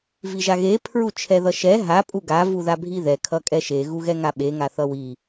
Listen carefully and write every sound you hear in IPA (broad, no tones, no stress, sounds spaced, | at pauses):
v i ʒ a ɣ e pʰ ɹ u t͡ʃʰ ɛ ð ʌ ʃ ɛ ɦ a pʼ u ɡ a v u ð a bʱ i ð ɛ kʰ ʌ kʼ ɛ ʃ e ɣ u ɣ ɛ ŋ a ɓ e ŋ a θ ʌ w i